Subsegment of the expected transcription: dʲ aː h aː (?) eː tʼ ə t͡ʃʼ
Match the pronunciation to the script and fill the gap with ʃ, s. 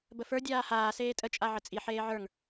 s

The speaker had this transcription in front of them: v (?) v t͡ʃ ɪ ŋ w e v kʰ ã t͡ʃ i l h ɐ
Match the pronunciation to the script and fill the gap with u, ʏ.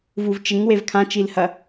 u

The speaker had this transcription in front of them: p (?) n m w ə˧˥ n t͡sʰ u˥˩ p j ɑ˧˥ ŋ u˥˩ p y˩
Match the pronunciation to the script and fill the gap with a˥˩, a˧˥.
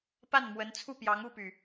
a˥˩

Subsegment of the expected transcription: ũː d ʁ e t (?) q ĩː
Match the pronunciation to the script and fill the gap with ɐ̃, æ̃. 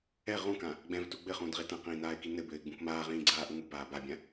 ɐ̃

